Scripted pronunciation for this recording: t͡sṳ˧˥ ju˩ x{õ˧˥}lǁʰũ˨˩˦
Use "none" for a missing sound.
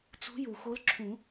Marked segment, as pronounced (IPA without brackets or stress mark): o˧˥